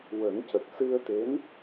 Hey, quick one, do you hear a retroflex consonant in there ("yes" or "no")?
no